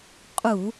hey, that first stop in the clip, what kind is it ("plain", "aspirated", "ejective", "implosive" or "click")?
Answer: ejective